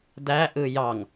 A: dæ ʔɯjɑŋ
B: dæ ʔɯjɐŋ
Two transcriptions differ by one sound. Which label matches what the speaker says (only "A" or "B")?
A